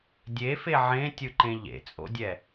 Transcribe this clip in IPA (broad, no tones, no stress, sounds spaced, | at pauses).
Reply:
dʲ e f e ʕ ẽ tʲ ɯ ǃ ẽ ʎ ḛ t͡sʼ o̰ dʲ ɛ